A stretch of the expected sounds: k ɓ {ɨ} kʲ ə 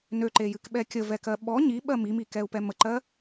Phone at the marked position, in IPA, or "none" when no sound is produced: ɛ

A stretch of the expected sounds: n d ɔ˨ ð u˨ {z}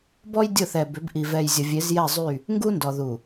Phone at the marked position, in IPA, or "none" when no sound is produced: none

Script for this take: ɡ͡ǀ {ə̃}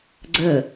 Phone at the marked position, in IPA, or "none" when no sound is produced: ə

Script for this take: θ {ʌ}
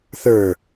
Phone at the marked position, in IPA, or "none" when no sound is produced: ə˞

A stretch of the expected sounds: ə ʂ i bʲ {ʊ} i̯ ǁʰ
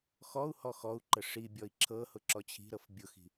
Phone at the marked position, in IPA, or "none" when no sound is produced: ɔ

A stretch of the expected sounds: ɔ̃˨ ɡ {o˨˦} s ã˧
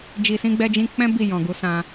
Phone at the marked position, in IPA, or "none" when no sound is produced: u˨˦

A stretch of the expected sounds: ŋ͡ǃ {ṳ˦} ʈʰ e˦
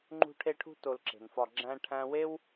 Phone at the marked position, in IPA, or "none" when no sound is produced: ṳ˦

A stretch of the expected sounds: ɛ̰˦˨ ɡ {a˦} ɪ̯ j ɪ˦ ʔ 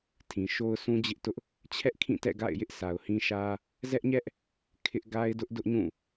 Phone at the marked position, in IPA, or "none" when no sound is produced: a̰˦˨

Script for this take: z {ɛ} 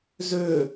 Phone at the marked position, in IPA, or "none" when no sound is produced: ø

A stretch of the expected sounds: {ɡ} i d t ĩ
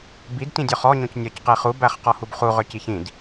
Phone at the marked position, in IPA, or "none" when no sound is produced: b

